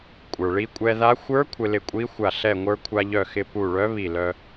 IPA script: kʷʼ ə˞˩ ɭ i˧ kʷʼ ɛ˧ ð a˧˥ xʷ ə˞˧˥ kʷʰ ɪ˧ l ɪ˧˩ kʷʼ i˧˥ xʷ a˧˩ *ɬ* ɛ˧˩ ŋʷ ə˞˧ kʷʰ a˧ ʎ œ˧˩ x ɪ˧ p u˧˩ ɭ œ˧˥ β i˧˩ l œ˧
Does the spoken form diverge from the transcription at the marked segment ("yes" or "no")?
no